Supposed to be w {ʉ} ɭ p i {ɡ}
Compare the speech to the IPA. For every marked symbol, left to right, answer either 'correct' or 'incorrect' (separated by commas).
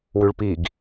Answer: correct, correct